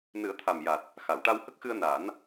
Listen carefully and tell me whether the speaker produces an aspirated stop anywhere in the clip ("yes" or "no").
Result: yes